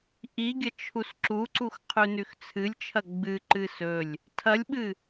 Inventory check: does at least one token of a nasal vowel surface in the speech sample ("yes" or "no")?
no